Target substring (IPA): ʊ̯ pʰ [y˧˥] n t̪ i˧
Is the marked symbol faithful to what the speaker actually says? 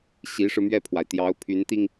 yes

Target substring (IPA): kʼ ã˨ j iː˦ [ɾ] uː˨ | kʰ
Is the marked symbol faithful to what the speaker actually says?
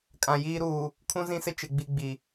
yes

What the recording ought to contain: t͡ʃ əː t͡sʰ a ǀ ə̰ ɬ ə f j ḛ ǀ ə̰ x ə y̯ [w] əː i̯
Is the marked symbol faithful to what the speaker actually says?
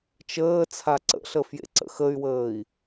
yes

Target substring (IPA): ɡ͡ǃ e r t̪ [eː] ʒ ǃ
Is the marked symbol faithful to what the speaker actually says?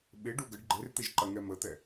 no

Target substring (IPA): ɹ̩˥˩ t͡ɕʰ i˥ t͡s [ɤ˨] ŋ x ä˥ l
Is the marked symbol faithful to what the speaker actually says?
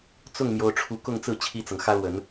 yes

